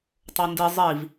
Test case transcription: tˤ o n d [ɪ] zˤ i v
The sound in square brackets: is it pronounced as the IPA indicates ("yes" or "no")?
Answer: no